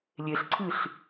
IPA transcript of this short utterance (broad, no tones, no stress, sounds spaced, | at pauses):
lʲ e ɬ ǀʰ ɨ ɬ